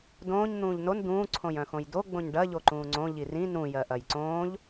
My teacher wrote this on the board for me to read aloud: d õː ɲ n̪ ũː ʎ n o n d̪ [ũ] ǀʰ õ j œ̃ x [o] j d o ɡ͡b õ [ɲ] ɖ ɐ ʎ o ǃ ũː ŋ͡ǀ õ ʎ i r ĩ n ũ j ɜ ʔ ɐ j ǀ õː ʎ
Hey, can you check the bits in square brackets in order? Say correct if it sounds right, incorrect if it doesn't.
incorrect, incorrect, correct

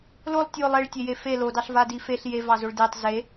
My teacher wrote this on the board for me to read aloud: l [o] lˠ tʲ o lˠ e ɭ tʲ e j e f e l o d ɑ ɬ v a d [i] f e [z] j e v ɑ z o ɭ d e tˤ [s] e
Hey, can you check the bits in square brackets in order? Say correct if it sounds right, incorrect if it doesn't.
correct, correct, incorrect, incorrect

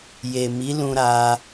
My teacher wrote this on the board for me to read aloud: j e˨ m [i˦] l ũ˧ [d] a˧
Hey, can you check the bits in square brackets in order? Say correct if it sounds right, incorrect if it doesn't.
incorrect, incorrect

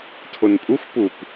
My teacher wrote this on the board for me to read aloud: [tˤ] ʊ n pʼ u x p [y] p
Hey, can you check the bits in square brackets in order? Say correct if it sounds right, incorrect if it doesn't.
incorrect, incorrect

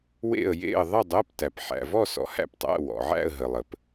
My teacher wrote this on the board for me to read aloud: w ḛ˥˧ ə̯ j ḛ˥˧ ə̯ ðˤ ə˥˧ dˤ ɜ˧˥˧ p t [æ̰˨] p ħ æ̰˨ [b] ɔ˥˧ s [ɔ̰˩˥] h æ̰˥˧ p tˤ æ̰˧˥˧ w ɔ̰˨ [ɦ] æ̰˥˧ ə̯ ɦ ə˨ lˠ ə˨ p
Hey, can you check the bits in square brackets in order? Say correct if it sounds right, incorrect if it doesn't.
incorrect, incorrect, correct, incorrect

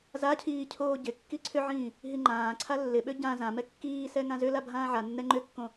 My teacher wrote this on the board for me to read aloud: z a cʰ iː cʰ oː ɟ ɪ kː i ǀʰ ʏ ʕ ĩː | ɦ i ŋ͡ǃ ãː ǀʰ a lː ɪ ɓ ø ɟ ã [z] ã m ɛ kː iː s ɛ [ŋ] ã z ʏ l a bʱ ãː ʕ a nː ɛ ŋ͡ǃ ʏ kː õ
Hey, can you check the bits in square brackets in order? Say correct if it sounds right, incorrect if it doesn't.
correct, correct

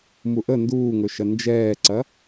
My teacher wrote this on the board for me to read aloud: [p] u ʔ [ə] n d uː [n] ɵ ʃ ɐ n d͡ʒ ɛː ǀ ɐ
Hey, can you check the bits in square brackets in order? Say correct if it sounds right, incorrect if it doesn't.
incorrect, correct, incorrect

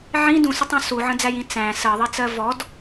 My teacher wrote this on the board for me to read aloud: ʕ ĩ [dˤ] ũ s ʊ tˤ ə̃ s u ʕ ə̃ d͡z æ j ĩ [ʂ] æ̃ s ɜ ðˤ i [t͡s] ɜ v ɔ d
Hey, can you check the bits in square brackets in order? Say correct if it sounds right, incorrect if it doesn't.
incorrect, incorrect, correct

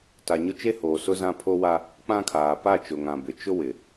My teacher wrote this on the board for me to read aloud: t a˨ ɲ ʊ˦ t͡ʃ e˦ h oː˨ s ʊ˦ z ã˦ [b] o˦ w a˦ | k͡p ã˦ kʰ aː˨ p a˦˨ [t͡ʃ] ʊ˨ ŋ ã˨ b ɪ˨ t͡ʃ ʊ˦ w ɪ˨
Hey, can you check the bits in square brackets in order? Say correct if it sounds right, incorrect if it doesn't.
incorrect, correct

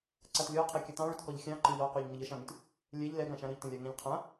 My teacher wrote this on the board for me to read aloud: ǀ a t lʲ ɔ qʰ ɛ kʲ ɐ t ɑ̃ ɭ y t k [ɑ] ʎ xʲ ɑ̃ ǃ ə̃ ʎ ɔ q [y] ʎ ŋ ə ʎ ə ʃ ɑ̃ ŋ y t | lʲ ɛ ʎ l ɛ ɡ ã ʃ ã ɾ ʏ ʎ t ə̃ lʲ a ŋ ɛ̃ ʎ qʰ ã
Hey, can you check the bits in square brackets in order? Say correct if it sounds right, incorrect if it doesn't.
incorrect, correct

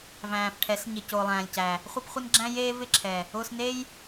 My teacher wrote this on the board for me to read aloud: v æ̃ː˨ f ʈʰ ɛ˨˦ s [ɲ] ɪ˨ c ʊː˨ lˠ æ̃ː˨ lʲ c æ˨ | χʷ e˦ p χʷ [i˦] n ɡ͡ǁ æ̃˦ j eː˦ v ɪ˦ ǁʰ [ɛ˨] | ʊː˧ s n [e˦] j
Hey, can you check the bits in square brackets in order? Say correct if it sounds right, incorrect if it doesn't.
correct, incorrect, correct, correct

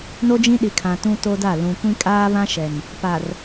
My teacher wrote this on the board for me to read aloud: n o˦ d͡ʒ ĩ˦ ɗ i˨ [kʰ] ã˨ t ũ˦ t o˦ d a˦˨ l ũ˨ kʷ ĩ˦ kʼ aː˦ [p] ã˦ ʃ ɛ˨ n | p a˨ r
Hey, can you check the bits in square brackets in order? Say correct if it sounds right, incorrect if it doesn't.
correct, incorrect

